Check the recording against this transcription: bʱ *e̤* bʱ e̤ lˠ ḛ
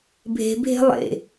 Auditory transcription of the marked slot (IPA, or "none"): e̤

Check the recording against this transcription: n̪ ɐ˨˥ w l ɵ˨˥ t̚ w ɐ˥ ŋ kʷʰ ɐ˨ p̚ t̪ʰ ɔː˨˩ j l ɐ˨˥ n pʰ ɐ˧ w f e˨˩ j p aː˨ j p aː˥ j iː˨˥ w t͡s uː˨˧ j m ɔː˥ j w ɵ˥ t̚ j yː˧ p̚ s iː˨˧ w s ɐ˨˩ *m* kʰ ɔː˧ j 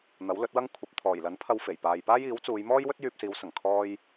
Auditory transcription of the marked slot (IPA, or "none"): ŋ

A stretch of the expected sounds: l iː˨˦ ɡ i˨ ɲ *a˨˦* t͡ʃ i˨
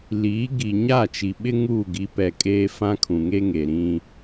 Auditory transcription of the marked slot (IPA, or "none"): a˦˨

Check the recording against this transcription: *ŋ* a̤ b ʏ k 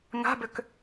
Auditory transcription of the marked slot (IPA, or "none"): ŋ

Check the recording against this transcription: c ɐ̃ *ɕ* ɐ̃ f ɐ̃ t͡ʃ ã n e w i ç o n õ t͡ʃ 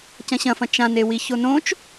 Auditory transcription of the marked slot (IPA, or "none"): ɕ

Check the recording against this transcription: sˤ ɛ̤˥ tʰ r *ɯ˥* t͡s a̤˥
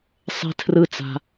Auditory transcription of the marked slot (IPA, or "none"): ɯ˥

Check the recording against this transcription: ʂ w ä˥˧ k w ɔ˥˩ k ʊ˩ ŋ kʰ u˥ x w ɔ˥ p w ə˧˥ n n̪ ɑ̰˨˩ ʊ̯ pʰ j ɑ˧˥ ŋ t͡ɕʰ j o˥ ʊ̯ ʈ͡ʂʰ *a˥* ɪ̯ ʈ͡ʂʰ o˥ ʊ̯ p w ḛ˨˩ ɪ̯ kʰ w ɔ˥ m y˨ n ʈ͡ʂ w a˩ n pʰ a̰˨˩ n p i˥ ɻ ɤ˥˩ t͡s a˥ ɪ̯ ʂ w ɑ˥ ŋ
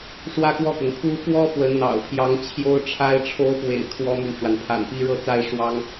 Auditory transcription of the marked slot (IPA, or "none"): a˥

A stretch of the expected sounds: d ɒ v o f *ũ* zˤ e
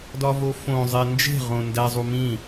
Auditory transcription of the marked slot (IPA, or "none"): õ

